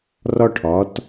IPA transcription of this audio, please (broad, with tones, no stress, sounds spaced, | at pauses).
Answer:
r ɒ˧ ʈʰ ɒ˩˧ t